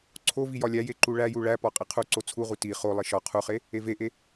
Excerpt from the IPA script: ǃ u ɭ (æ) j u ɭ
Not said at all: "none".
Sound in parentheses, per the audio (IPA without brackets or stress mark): æ